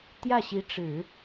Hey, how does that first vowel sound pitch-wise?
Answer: falling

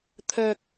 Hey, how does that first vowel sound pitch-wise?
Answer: low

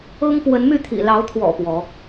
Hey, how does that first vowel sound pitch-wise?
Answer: high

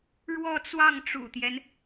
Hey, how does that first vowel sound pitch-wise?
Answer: falling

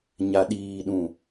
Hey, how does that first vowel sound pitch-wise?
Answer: low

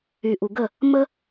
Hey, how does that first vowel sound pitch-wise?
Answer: low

